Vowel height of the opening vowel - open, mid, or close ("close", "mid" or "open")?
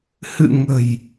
close